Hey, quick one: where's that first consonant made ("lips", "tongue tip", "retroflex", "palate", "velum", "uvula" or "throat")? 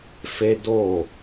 lips